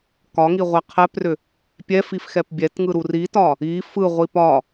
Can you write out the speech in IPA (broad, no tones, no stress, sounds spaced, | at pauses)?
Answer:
k ɒ ŋ i ʁʷ ɛ qʰ ɛ p r ʏ | pʲ ɛ f i f x ɛ p bʲ ɛ t ŋ ɯ ɾ u r i t ɒ | i f ɯ ʁʷ i p ɒ